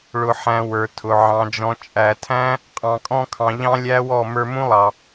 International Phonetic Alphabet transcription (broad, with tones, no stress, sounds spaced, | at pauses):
ɭ ʊ˨ ħ æ̃˨ w ə˞˨ tʰ ʊ˨ ʕ ɑ̃˨ d͡ʒ ɔ̃˨ t͡ʃʼ æ˨ tʰ æ̃˦ | qʼ ɑ̃˨ kʼ ɔ̃˧ kʰ ɑ̃˨ ʎ ɑ̃˦ lʲ æ˦ w ɔ˦˨ m ə˞˧ m ũ˦ lˠ ɑ˨